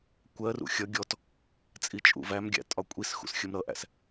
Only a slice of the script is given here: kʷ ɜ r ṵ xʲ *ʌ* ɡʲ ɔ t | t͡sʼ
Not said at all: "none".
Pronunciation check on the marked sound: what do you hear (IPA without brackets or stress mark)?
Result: ʌ